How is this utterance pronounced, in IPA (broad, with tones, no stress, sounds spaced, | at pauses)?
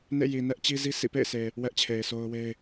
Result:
n ḛ˦˨ j i˨ n ɛ˦ ʔ t͡ɕ i˦ z i˦ s ḭ˦˨ p ḛ˦˨ ɪ̯ sʰ e˨ | w ɛ˦ ʔ t͡ɕʰ e˨ ɪ̯ sʰ o˦ ʊ̯ w e˦ ɪ̯